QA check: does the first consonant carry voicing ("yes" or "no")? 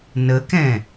yes